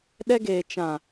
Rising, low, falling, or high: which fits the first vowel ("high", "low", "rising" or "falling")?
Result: high